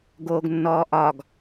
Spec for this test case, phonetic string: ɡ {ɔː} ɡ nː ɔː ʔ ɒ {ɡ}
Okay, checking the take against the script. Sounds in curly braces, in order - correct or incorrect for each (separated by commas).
incorrect, correct